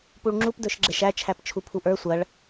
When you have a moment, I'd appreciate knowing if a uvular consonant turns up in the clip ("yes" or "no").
no